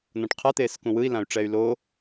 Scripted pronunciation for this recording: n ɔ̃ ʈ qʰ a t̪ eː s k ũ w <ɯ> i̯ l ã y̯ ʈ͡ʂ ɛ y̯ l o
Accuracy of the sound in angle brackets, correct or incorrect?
correct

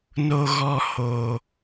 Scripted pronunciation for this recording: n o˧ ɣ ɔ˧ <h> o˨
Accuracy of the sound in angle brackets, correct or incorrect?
correct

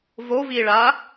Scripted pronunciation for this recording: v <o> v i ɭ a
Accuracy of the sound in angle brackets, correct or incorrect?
correct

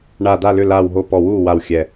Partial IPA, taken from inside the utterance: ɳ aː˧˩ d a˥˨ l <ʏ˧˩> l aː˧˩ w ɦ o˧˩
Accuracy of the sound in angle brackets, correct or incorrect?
incorrect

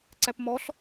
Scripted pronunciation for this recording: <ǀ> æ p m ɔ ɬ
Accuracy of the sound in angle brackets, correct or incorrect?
correct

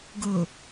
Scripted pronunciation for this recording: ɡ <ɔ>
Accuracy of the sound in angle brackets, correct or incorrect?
incorrect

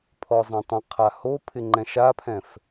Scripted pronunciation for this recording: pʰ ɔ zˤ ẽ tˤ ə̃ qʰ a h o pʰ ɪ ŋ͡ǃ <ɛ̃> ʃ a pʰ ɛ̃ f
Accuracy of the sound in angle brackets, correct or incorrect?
correct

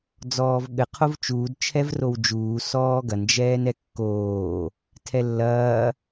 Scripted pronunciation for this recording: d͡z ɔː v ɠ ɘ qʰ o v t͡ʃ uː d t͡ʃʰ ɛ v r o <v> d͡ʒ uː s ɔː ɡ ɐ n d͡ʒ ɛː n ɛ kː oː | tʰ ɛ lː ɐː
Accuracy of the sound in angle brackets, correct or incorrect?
incorrect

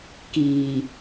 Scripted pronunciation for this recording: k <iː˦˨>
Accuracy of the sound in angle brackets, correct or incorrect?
incorrect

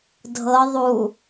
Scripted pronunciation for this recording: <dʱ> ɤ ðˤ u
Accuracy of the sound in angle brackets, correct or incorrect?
correct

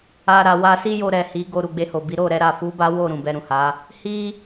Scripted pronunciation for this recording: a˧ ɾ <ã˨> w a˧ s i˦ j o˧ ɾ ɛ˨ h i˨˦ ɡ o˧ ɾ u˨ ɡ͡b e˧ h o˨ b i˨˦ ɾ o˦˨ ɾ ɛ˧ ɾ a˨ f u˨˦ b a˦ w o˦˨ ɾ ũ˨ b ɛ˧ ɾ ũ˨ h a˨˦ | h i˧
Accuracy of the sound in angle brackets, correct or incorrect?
incorrect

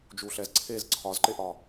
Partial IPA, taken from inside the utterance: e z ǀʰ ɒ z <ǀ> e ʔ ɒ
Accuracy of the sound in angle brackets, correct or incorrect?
incorrect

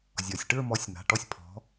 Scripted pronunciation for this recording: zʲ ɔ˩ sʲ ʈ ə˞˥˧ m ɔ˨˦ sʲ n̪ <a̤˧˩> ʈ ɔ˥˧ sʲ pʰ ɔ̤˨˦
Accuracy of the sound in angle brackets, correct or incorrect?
incorrect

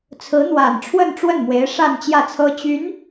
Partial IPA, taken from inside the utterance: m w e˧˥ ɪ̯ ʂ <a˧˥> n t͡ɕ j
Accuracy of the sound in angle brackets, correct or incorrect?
incorrect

